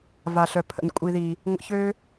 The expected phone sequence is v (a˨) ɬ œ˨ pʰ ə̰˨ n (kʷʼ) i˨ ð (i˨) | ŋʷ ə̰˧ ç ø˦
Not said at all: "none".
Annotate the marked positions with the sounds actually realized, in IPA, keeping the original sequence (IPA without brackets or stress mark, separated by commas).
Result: a˨, kʷʼ, i˨